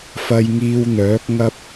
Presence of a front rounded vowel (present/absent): present